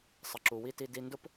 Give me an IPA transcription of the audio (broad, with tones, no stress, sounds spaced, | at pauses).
sˤ ə˨ ǁ u˨ w i˧ t i˧ d i˧ n d ʊ˦ p